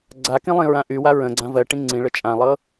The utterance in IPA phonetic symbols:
ɡ͡ǀ a k ĩ lˠ ĩ ɹ ã ʔ y w a ɹ ə̃ ɡ͡ǀ ã v ɜ ʈ ĩ ŋ͡ǀ ĩ ɭ ə t͡ʃʼ ã lˠ ɤ

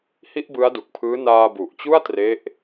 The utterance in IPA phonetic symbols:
h i˥˩ ʔ b ɯ˦˥ a̯ d u˨˩ k̚ pʰ ɯː˦˥ n aː˧ b u˨˩ ʔ t͡ɕ u˥˩ a̯ t r e˦˥ ʔ

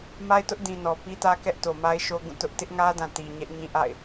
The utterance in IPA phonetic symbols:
m a˦ ɪ̯ t ʊ˦ ʔ d ĩ˨ n ɔ˨ p i˦ t ä˦ k ɛ˦ ʔ t o˨ m a˦ ɪ̯ ʃ o˦ ɡ ũ˦˨ t ʊ˦ ʔ t ɪ˦ ʔ ŋ ä˦ d ã˨ t i˨ ɲ ɛ˦ ʔ ɲ ĩ˦ ʔ a̰˦˨ ɪ̯

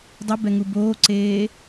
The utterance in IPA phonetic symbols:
dˤ ə b ɛ ŋ u b oː ǀ eː

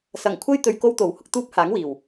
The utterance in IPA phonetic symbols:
s ɐ˨˩ ŋ kʷʰ ɐ˥ j t̪ ɵ˧ ɥ k o˥ w t̪ o˨˩ w h ʊ˧ k̚ t̪ uː˥ p̚ h aː˨˥ ŋ w iː˨˩ w

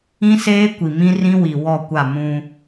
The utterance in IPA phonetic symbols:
ĩ˦ s eː˦ kʷ i˨ m ĩ˦ r ĩ˦ w i˨ w ɔ˦˨ kʷ a˦˨ m ũ˦

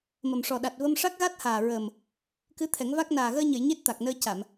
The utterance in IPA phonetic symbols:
m ə˨˩ m ʂ ɔ˨˩ ɗ a˨˩ t̚ v ə˧ m ʂ a˦˥ k̚ ɣ a˦˥ t̚ h aː˨˩ ɹ əː˨˩ m | k ɨ˧˥ t̪ʰ ɛ˨˩˦ ŋ v a˦˥ k̚ n aː˨˩ ɣ əː˧ ɲ ə˨˩˨ j ɲ e˦˥ t̚ t̪ a˨˩ k̚ n əː˧ c a˨˩˨ m

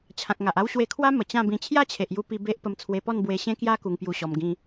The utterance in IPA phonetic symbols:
t͡ɕʰ ã˨ k̚ ŋ a˨ ʔ a˦ w ɕ w e˧ kʰ w a˦ m ə˨˩ t͡ɕ ã˥˧ b ĩ˧ t͡ɕʰ j a˥˧ t͡ɕʰ e˨ ʔ j u˧ p i˧ b e˦ ʔ p ə˧ m t͡sʰ w e˧ p ɔ˥˧ n b w e˧ ɕ ẽ˧ k j a˧ k u˧ ŋ p j u˧ ɕ ɔ˧ m ɡ ĩ˦

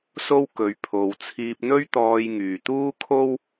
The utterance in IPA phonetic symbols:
s o˥ w k ɵ˨˧ ɥ pʰ o˨ w t͡sʰ iː˧ p̚ n̪ ɵ˥ ɥ t̪ ɔː˧ j ŋ yː˨ t̪ uː˥ kʰ o˥ w

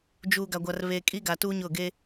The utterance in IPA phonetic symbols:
d͡ʒ uː˨ ɡ a˨ ɡʷ a˨ r β e˨ kʼ i˦ ɡ a˨ t u˦ ɲ ʊ˦˨ ɡ e˦

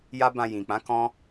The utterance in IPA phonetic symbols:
j a˦ b ã˧ j ĩ˨ k͡p ã˨˦ k ɔ̃˦

